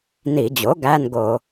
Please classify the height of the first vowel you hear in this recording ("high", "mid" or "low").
high